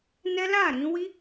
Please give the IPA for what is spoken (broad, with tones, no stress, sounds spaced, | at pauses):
n ɛ˦ l a˦˨ ɾ ĩ˧ w i˦